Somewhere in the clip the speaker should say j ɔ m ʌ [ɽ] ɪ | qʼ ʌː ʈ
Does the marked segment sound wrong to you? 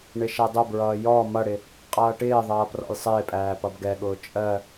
no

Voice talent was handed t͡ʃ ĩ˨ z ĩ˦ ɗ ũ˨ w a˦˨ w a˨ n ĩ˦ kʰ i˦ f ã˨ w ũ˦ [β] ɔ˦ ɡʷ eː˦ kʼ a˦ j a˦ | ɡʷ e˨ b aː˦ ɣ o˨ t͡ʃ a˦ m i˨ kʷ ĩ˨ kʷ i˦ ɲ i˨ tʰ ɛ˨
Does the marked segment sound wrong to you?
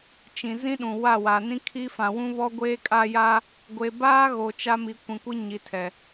no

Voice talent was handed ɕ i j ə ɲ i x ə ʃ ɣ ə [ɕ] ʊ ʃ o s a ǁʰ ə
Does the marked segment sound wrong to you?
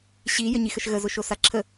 yes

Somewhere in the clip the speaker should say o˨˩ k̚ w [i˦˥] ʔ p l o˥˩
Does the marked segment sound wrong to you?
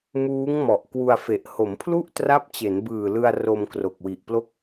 yes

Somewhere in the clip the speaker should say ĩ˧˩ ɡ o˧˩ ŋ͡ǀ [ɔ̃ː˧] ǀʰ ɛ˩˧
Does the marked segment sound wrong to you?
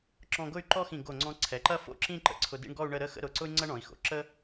yes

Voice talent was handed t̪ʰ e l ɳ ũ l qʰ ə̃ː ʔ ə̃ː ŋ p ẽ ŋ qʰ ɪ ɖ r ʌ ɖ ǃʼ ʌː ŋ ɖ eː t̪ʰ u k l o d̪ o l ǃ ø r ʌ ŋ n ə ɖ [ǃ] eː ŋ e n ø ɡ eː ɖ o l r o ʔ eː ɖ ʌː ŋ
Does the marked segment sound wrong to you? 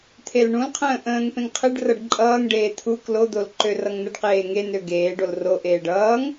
yes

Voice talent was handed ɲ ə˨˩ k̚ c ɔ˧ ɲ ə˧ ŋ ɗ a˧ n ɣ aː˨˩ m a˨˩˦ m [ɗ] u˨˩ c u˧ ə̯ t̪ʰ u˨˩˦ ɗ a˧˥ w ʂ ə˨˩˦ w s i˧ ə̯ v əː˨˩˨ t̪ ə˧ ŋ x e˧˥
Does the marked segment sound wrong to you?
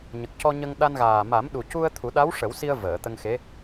no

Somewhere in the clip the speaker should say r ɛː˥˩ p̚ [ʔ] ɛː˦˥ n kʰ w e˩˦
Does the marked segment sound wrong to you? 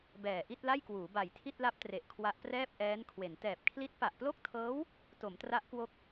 no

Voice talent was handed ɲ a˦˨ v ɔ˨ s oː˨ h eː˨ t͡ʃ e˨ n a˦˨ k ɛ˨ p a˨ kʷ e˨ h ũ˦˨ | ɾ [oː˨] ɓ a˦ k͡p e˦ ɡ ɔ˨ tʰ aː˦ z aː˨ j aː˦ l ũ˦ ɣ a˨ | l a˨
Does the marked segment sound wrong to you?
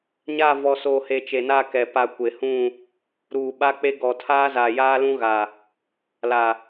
yes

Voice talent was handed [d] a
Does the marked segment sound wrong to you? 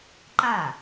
yes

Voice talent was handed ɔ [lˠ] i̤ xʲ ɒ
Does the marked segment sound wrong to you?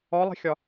no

